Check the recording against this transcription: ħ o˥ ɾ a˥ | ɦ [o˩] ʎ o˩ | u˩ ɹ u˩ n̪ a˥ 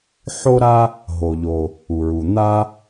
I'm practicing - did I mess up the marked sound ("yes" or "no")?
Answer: no